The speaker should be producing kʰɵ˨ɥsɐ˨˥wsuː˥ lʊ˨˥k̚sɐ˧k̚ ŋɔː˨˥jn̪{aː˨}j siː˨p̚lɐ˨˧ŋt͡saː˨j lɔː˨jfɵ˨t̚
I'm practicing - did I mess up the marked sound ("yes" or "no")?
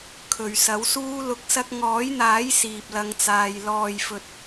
yes